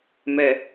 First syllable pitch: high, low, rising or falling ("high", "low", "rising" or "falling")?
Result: low